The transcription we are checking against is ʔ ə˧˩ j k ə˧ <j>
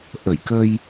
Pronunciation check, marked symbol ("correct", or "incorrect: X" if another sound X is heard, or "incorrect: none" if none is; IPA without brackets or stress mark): correct